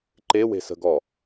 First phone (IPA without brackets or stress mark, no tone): ǃ